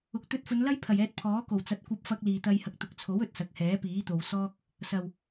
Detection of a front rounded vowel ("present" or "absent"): absent